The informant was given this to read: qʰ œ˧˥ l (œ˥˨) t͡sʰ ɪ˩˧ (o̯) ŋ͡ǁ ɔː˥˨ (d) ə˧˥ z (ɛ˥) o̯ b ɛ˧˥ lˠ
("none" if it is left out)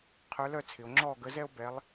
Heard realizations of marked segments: œ˥˨, o̯, ɡ, ɛ˥

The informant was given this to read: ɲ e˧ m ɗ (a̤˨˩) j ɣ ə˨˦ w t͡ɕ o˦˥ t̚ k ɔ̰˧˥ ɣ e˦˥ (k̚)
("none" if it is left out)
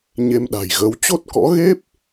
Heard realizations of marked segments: a̤˨˩, p̚

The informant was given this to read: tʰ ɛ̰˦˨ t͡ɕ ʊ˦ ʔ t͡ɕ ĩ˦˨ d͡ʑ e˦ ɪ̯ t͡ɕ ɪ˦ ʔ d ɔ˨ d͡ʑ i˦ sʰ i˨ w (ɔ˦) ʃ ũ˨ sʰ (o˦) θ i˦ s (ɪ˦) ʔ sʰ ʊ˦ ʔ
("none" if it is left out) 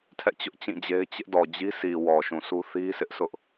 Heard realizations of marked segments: ɔ˨, u˦, ɪ˦

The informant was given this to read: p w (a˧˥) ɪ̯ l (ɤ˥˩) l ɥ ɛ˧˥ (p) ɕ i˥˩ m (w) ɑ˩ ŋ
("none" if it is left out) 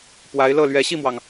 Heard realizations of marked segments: a˧˥, ɤ˥˩, none, w

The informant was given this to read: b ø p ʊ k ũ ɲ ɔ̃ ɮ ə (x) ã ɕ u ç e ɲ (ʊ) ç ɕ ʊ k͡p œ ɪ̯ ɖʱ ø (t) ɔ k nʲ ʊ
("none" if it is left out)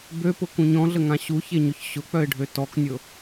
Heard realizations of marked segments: ŋ, ʊ, t

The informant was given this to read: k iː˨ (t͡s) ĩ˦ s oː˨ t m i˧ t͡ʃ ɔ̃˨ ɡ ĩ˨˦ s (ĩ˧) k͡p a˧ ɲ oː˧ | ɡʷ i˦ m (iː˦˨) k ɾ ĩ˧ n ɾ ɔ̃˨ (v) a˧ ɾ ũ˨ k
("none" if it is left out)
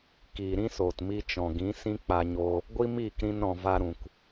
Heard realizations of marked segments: ɾ, ĩ˦, iː˦˨, v

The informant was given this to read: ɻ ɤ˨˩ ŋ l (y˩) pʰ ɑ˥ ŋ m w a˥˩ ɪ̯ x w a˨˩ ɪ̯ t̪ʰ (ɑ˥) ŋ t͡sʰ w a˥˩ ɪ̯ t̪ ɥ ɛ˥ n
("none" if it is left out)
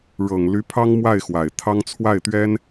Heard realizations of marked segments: y˧˥, ɑ˥

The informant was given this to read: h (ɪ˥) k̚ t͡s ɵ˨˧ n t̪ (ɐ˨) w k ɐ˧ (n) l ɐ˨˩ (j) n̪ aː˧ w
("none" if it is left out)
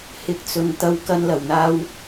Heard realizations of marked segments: ɪ˨˥, ɐ˨, n, w

